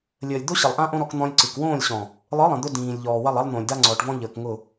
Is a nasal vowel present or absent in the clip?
present